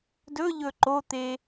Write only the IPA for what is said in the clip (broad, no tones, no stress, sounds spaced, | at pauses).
d ɵ ʎ ɵ ǃ o t̪ e